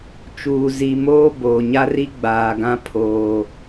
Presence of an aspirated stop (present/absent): present